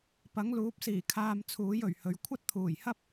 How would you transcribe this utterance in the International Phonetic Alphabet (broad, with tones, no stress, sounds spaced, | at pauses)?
p ɐ˨˥ ŋ l uː˨˥ p̚ s iː˨˩ kʰ aː˧ m t͡sʰ uː˨˥ j ɵ˨˩ ɥ h ɵ˨ ɥ kʷʰ ɐ˥ t̚ t̪ʰ uː˨˩ j h ɐ˥ p̚